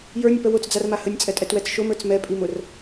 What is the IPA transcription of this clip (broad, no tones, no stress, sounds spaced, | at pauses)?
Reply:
j ə˞ nʲ ə p ə w ʊ t͡s d͡z a r m a h ə nʲ t͡sʼ ɛ tʼ ɛ t w ɛ t͡s ʃ ʊ m ə˞ t͡s m ɛ pʼ i m ʊ r